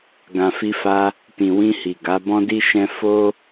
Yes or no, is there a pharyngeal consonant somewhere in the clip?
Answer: no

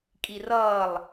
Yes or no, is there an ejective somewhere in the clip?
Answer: yes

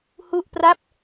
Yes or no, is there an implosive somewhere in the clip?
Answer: no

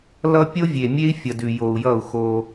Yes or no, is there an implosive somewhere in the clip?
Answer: no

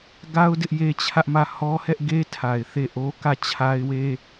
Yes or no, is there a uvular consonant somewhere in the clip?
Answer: no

